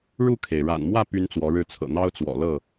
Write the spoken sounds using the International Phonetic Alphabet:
ɻ u˥˨ kʰ e˩ ɪ̯ ɻ a̰˨˩ n m w ä˥˨ p y˦ n t͡s w ɔ˨˦ ɻ ɻ̩˥˨ t͡sʰ ɤ̰˨˩ n̪ ɑ˦ ʊ̯ t͡s w ɔ̰˨˩ l ɤ˥˨

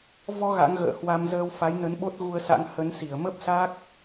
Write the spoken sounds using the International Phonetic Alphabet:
v ɔ˧ ɣ a̰˧˥ ŋ ɣ ə̰ː˧˨ h w a˧ m z əː˧ w f a˨˦ j n ə˨˦ n ɓ o˦˥ t̚ ɣ u˧ ə̯ s a̰˧˥ ŋ h ə˨˦ n s i˧˩ ə̯ m ə˦˥ p̚ s a˦˥ k̚

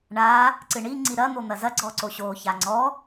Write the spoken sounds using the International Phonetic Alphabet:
ɳ a | ǀ ɨ ɳ i ŋ͡ǀ i ɾ ɐ n̪ o n̪ ɐ z ɐ ɡ͡ǀ ɔ ǀ o ɕ o ç a ŋ͡ǀ ɔ

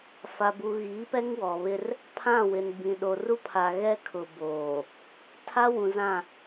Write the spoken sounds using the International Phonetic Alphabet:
f a˨ b u˨ ɣ iː˨˦ p ɛ˦ ŋ w ɔ˨ β ɪ˦ r | pʰ ã˦˨ w ɪ˨ n b ĩ˨ ɗ o˨ r u˦ pʰ a˨ ɣ ɛ˦ kʰ ʊ˨ b oː˨ | tʰ a˦ w ũ˨ z ã˦˨

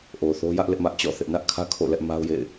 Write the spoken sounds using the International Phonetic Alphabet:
ʔ o˨ θ o˦ j ä˦ ʔ l ɪ˦ ʔ m ä˦ ʔ t͡ɕ ɔ̰˦˨ θ ɪ˦ ʔ n ä˦ ʔ kʰ ä˦ kʰ o̰˦˨ l ɛ˦ ʔ m a˦ ʊ̯ j ḛ˦˨ ɪ̯

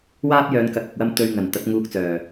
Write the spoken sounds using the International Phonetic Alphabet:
w aː˥ p̚ j œː˨˧ n k ɐ˨˥ k̚ ɐ˨ k̚ w ɐ˥ m t̪ ɵ˧ ɥ ŋ ɐ˨˩ n t̪ ɐ˨˥ t̚ ŋ uː˧ k̚ t͡s œː˨˩

